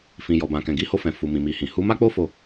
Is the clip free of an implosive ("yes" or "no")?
yes